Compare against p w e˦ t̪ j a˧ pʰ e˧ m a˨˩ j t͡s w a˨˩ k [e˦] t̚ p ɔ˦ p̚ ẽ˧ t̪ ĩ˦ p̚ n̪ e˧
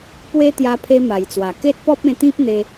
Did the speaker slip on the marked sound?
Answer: no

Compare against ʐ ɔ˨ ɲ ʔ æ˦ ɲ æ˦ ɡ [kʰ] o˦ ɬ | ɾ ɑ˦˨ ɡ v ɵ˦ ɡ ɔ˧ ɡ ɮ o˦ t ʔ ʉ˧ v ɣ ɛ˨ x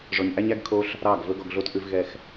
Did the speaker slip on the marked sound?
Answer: no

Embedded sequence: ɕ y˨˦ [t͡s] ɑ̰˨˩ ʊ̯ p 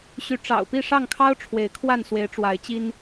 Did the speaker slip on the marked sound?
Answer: yes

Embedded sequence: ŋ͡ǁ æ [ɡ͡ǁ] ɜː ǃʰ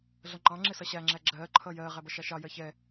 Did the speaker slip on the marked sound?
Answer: no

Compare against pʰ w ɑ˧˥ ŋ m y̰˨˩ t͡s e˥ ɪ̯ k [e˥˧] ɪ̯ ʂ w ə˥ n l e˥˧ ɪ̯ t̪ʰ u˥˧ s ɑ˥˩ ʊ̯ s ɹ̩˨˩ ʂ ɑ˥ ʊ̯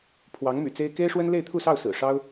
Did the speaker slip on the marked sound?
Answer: yes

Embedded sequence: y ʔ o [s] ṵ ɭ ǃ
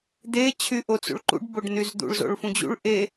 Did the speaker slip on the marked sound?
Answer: yes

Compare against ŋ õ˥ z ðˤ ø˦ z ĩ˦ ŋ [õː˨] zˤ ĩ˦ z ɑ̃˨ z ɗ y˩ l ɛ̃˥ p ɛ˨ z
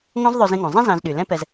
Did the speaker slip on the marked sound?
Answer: yes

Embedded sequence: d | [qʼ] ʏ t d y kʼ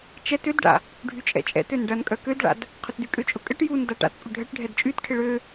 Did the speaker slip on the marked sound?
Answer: yes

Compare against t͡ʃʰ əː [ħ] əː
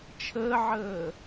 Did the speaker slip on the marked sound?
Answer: yes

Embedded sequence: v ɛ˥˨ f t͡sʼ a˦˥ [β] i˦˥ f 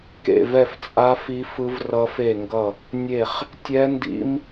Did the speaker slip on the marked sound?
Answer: yes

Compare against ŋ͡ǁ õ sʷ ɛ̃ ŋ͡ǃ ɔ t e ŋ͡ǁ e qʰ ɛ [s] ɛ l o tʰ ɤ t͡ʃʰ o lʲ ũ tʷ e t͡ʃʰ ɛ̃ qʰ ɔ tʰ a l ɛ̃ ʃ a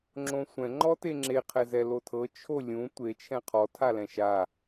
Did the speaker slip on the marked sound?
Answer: yes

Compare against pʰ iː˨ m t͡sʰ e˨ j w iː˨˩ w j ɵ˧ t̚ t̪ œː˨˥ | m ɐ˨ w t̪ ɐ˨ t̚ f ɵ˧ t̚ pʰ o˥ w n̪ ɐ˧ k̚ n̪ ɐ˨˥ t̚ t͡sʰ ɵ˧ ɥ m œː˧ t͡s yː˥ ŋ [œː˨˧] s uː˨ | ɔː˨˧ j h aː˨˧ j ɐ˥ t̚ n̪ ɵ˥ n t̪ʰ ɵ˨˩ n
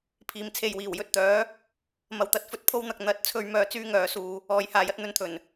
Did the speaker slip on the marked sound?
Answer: no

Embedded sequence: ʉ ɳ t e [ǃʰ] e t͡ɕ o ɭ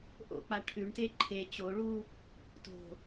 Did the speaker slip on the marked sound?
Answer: no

